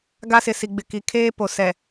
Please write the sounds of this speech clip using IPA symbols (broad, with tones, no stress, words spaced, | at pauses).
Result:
ɡa˦sɪ˨si˨ɡ͡bɪ˨ ki˨kʰeː˦ po˨ sɛ˨